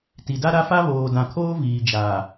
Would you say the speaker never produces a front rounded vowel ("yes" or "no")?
yes